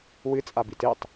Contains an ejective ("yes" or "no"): yes